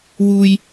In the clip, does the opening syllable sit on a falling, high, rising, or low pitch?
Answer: high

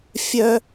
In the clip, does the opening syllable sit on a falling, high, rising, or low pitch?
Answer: high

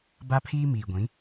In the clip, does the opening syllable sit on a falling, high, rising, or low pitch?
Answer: high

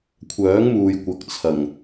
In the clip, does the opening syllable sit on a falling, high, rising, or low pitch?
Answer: rising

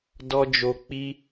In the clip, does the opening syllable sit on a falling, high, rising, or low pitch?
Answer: low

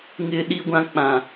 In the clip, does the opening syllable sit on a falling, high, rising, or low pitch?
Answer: high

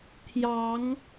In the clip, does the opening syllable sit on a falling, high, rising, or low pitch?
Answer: rising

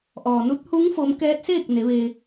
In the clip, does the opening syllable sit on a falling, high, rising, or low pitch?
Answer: low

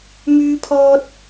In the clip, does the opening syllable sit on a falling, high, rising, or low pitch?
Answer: high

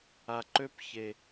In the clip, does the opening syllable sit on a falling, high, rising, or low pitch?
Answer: low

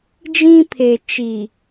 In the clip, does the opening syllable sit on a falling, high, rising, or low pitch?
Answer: high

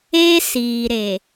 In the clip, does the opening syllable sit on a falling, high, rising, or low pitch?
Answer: high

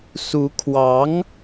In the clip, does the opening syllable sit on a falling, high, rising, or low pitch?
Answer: rising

